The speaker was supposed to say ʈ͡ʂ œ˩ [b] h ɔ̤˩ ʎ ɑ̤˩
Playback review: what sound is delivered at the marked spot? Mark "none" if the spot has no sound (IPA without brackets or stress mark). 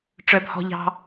b